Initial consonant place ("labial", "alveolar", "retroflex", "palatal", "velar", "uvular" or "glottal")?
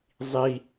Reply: alveolar